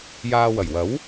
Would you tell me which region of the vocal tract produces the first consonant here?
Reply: palate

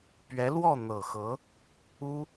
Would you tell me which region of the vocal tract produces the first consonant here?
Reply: lips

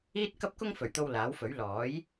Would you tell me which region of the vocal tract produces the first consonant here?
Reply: tongue tip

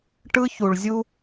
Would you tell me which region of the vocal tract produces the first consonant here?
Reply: retroflex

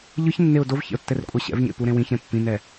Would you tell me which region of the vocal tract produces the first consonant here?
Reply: palate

